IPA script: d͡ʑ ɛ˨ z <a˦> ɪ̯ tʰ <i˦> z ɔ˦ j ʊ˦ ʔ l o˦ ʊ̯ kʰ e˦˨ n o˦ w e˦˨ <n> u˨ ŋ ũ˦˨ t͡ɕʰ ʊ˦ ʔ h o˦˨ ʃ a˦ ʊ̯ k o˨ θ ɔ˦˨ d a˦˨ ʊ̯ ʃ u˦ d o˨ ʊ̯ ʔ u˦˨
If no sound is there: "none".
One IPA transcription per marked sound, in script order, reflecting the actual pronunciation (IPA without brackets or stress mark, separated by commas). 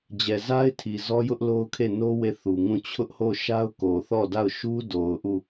a˦, i˨, θ